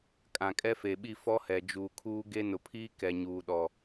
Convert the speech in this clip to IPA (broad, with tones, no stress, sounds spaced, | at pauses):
kʼ ã˨ kʼ ɛ˦ f e˨ ɓ i˦˨ f ɔ˦ h ɛ˨ d͡ʒ uː˨ kʰ uː˦ ɡ e˦ n ʊ˨ pʰ iː˦ k ɛ˨ ɲ uː˨ ɗ ɔ˨